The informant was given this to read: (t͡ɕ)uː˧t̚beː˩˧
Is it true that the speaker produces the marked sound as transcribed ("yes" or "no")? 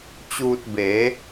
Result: yes